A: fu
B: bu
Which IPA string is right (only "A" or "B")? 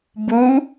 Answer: B